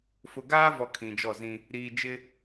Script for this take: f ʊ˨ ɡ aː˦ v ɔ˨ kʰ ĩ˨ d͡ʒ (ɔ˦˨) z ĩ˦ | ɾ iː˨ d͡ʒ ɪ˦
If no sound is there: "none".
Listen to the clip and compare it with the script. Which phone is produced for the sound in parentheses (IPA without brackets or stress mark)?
ɔ˦˨